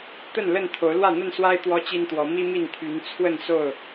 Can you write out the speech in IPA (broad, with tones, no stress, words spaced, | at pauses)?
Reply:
t̪ə˥˨nlə˥˨n t̪ʰo˨˦ʊ̯lwä˥˨n̪ə˥˨nswa˦ɪ̯ t̪wɔ˦t͡ɕi˦nt̪wɔ˨˦ mi˦mi˥˨nt̪ʰy˨˦n t͡sʰwə˥˨nso˥˨ʊ̯